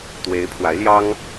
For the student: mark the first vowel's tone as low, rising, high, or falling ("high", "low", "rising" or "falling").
rising